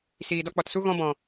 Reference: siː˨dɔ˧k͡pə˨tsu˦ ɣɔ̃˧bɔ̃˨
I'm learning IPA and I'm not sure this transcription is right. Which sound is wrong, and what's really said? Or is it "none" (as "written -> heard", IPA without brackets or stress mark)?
ə˨ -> ɔ˨